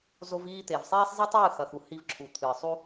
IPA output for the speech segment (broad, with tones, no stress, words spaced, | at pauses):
zo˧viː˧t̪e˨vsˤeː˦sˤ zˤi˦tˤɨː˦˨ xɐ˨xu˨hi˧v ǁʰu˨t̪ʰɨː˨sˤu˦